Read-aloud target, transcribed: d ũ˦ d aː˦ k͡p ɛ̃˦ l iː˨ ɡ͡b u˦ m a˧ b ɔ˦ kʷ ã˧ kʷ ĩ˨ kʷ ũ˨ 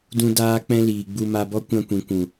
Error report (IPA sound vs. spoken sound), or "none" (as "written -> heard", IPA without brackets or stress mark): u˦ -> u˧